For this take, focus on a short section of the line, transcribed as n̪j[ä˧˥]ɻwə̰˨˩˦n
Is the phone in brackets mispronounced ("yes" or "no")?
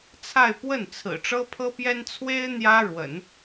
yes